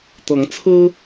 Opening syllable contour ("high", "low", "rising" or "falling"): rising